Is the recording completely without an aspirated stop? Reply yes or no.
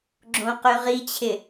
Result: no